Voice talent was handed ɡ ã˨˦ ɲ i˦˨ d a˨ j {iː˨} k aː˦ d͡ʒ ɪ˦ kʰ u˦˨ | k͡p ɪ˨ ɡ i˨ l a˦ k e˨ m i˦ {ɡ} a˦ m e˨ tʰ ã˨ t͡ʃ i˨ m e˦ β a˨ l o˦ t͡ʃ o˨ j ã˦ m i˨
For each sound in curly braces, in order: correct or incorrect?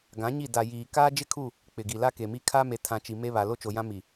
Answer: correct, incorrect

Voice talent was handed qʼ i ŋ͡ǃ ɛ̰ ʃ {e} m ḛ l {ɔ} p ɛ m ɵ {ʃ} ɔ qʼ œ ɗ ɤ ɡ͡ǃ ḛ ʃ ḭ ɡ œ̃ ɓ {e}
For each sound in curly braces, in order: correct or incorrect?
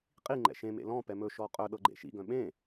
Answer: incorrect, incorrect, correct, incorrect

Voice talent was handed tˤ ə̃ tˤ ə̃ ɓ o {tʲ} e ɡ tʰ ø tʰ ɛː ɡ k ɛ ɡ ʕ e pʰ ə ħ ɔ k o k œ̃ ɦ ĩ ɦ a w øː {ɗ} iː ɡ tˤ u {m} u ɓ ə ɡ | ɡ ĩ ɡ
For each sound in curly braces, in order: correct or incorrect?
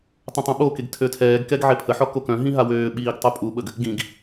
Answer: incorrect, incorrect, incorrect

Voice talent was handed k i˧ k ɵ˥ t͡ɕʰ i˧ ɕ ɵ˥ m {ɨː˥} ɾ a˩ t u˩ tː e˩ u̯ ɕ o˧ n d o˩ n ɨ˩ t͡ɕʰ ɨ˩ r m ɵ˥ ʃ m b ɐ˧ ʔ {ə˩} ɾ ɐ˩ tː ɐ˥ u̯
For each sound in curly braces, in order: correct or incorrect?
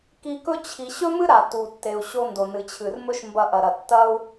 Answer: incorrect, incorrect

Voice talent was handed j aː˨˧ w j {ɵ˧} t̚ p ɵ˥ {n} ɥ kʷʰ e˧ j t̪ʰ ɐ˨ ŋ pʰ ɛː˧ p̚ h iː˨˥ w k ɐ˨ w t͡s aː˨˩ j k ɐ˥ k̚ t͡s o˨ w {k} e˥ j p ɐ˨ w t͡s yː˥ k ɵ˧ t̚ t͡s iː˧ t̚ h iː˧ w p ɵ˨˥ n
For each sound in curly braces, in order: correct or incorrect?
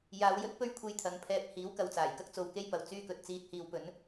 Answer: incorrect, incorrect, correct

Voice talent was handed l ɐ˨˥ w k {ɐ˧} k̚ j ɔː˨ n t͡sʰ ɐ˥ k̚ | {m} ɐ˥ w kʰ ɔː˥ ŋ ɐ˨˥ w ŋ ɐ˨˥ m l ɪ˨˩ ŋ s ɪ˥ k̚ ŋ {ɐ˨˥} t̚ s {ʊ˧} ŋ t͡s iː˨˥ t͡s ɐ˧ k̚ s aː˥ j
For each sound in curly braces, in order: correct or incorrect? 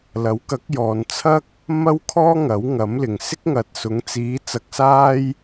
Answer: incorrect, correct, incorrect, incorrect

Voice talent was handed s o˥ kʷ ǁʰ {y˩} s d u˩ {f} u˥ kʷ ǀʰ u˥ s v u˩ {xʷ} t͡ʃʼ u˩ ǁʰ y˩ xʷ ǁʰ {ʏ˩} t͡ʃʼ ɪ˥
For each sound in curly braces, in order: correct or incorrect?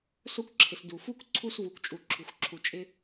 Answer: incorrect, correct, incorrect, incorrect

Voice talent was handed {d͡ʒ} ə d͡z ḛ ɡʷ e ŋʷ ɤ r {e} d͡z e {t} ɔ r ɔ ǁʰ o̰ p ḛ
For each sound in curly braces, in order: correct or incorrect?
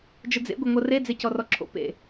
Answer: correct, correct, incorrect

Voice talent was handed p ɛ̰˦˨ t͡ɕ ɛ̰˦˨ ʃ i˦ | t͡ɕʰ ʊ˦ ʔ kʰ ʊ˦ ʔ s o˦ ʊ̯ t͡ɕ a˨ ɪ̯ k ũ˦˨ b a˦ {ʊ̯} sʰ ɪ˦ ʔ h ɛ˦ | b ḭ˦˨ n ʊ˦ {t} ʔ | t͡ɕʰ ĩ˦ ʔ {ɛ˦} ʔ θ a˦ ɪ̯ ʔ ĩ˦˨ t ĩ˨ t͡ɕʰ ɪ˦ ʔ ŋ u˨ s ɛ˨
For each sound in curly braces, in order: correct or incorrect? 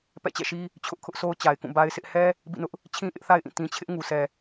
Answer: incorrect, incorrect, incorrect

